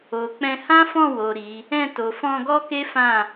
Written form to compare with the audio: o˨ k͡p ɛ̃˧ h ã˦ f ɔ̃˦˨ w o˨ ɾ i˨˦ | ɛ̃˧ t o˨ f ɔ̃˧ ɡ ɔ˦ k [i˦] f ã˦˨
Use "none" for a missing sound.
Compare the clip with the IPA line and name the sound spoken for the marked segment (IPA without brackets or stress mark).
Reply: e˦